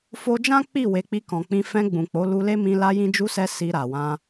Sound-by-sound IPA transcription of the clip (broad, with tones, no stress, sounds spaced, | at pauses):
f o˧ d͡ʒ ã˦ k͡p i˦˨ w e˨˦ k͡p i˧ k ɔ̃˨ k͡p ĩ˧ f ɛ̃˧ ɡ͡b ũ˨ k͡p o˨˦ l u˧ l e˦ m ĩ˧ l a˧ j ĩ˧ d͡ʒ u˧ s ɛ˧ s i˧ ɾ a˨ w ã˧